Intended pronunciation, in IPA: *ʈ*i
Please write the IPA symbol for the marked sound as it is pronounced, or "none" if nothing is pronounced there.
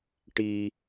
ʈ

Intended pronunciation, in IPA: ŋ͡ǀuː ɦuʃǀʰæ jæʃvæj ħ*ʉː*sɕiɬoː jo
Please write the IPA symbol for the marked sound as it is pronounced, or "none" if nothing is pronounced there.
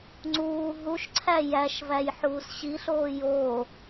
uː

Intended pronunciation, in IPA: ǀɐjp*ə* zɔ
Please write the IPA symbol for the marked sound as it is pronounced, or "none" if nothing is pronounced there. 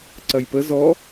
ə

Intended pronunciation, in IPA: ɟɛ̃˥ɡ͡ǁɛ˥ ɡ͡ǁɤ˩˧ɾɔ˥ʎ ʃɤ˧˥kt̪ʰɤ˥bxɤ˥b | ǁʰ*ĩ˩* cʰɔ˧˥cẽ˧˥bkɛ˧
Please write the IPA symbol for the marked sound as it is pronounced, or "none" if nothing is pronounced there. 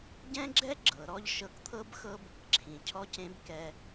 ĩ˩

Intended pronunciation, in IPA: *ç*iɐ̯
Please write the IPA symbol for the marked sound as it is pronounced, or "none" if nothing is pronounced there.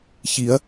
ç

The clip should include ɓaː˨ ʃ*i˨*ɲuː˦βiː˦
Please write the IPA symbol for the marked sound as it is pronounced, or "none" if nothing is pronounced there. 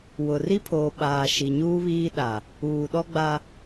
i˨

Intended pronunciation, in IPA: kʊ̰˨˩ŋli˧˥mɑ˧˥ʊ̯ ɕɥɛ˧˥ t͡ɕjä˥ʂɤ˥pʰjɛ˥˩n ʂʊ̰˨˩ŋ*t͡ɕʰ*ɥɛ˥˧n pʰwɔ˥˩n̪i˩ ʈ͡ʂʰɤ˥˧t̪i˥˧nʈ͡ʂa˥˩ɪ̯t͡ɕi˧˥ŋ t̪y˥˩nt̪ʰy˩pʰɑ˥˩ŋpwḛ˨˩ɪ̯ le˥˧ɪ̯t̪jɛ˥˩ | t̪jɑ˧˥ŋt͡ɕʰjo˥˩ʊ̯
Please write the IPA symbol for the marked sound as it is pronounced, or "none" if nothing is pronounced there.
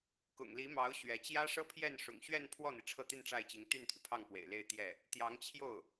ɕ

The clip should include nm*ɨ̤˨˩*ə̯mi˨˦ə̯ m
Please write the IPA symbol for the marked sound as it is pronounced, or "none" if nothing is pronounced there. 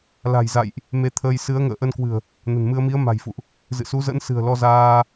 ɨ˧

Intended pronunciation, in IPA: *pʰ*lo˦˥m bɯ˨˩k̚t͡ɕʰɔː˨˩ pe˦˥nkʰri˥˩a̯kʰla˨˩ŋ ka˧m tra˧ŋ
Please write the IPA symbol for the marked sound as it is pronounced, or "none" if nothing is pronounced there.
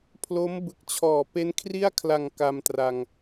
pʰ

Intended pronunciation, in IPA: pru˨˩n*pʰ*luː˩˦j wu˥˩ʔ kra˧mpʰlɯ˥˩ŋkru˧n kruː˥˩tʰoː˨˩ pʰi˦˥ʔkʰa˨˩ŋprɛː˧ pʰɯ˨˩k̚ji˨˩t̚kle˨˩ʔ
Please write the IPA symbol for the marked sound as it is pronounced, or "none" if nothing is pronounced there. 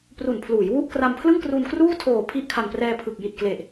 pʰ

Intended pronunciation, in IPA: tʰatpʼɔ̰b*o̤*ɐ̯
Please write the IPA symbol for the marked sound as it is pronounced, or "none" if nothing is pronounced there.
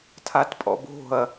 o̤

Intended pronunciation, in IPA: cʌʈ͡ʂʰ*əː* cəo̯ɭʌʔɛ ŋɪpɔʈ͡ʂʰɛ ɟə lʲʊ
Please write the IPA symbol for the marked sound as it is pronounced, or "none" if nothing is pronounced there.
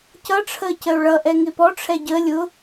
əː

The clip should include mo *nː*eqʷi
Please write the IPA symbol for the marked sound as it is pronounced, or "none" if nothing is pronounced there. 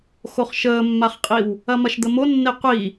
nː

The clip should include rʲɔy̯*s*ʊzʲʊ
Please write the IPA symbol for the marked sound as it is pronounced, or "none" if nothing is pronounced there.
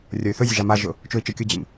θ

